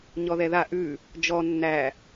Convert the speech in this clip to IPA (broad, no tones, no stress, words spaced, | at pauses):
ɲɔðɛða ʔʉ | d͡ʒɔ nːæ